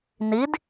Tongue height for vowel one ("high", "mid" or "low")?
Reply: high